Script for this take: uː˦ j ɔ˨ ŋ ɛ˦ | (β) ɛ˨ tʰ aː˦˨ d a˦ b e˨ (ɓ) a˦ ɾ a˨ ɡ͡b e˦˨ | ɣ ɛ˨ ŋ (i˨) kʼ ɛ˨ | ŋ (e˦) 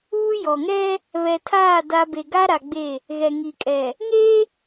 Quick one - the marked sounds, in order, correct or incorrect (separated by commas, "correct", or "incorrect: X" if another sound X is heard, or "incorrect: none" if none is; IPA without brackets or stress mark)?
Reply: correct, incorrect: ɡ, correct, correct